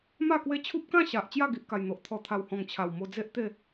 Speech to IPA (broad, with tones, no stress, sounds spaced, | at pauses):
m a˥˧ k w e˦ t͡ɕʰ u˦ p̚ k ã˥˧ ɕ a˨ ʔ t͡ɕ j a˥˧ ɡ i˨ ʔ k a˨˩ j n̪ o˨ ʔ t̪ʰ ɔ˨˩ t̪ʰ a˨˩ w h ɔ̃˨˩ ŋ t͡ɕʰ a˨˩ w m o˧ d͡z e˦ ʔ t̪ e˥˧